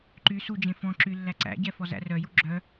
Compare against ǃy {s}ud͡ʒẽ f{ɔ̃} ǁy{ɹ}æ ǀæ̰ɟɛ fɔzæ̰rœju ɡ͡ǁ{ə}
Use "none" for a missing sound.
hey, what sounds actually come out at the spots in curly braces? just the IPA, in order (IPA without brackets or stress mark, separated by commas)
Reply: s, ɔ̃, lː, œ